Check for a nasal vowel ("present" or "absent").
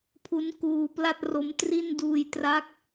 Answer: absent